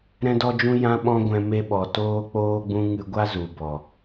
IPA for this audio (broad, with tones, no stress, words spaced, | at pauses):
ɾɛ̃˦dɔ˦d͡ʒũ˦ jã˦ɓɔ̃˦ɡʷɛ̃˧ me˧ɓɔ˨ toː˧k͡poː˧ɡ͡bũ˧ ŋɨ˧ɡʷa˦ zu˨bɔ˨